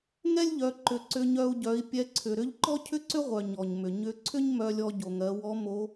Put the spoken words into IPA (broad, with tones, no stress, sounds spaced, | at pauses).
ŋ ɛ˥ lʲ ʎ œ˩˧ ǃ ʏ˩˧ ǀ ʏ˧ ɲ œ˧ u̯ ɟ œ˩˧ i̯ pʲ ɛ˧ ǀʰ ʏ˩ ɾ ʏ˥ ʎ ǃ ɔ˥ cʰ ʏ˥ ǀ ʏ˥ ʁʷ œ˩ ɲ ɔ˩ ɲ m ʏ˩ ɲ ʏ˧˥ ǀʰ ʏ˥ ɲ m œ˧ lʲ ɔ˧ ɟ o˩ ŋ ɜ˩˧ w ɔ˧˥ m o˧˥